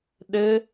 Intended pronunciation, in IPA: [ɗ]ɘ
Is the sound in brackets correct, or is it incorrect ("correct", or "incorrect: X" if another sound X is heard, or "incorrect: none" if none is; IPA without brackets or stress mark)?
correct